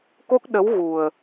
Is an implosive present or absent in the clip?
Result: present